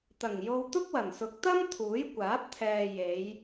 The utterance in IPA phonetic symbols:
t̪ɐ˨˩ŋjo˧w t̪ʊ˥k̚wɐ˨˩n sʊ˨˥k̚t̪ɐ˥m t̪ʰuː˨˥jkʷaː˨˥p̚t̪ʰɛː˨ je˨˧j

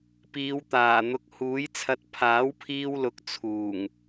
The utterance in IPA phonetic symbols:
piː˨˧wt̪aː˨˩n̪ʊ˨˥k̚ huː˨˥jt͡sʰɐ˧t̚ pʰaː˨˥wpʰiː˧wlʊ˨˥k̚ t͡sʰuː˨˩ŋ

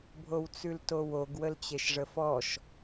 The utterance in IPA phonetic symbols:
bʱowt͡sʉltowoɡ wəlt͡ɕeʃʐəfɔʃ

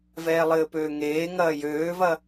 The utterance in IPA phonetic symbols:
vɛːlˠɘːpøːŋeː ŋɐːjøːvɐ

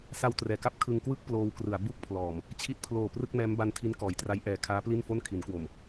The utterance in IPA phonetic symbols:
sa˧wtrɛː˩˦ka˦˥p̚ kʰɯ˧ŋkwɯ˥˩k̚ ploː˧wkrɯ˩˦a̯ bu˥˩k̚pʰlɔː˨˩m | t͡ɕʰi˦˥t̚pʰloː˨˩ prɯ˥˩k̚mɛː˦˥mba˦˥n tʰi˦˥nkɔː˩˦jtra˦˥j ʔɛː˨˩kʰaː˦˥ pli˥˩nfo˥˩nkʰi˩˦nkwo˨˩m

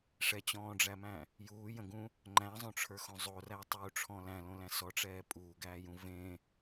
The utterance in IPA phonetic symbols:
ʂɛt͡ɕɔ̃ːɖ͡ʐæmæ̃ | juːjə̃ɡũ | ŋ͡ǃæ̃zˤõʈ͡ʂʰə˞xõ zˤorætˤuːʈ͡ʂʰɔ̃ læ̃lõlæ̃ sɔʈ͡ʂɛː pʼuːɡæːjũ vẽ

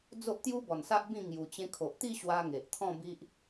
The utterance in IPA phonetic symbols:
d͡zo˦ʔt̪ju˦bɔ˨˩nsa˦ʔ bĩ˥˧ ŋju˧ t͡ɕẽ˧kʰo˨ʔt̪i˥˧ɕwa˧ ŋe˨ʔt̪ʰɔ̃˥˧bi˦ʔ

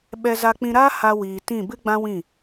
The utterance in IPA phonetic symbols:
ɓɛ˧za˧k͡pĩ˧ɾaː˦ ha˧ wiː˨ tĩ˦˨ bɨ˦ɡ͡bã˦wĩ˦˨

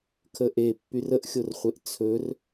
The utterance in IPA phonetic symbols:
kʰəʔepːyr əʔxʲorχʷeʔ t͡sʰɵr

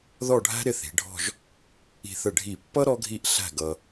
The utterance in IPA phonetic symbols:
ðɔ˥˧ɖʱæ̤˥ ɾɪ˥˧θi̤˩˧ɖʱɔ̤˥˧ʒ | i̤˧˩θə˧˩ɖʱi˧˩pːʌ˥ ɾɔ˥ɡʱi˥˧ʔɬæ̤˥˧ ɡʌ˧

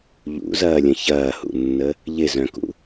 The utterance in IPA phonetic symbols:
ʎṵzɐːlʲə̃ çɐːhṵnːə | ʎɪzœ̃kṵ

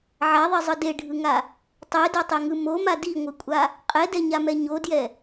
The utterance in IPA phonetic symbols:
ʕaðˤizˤɯ deɖʱɯŋa | tˤedotˤeŋɯ moma diŋʷɯkʷʼa | qʼɛdɛɲamɛ ɲodjɛ

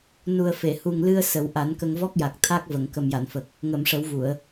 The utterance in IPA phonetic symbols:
nu˨˩ə̯fe˨˩˨hu˨˩ŋ lɨ˧ə̯ sə˨˩˦wʔa˨˩˦nkə˧ŋ vɔ˦˥k̚ja˨˩k̚t̪ʰa˦˥k̚ və˨˩˨ŋkə˨˩mja˨˩˨nfə˨˩k̚ | ŋə˨˩˨m ʂə˨˩˦wvu˨˩˨ə̯

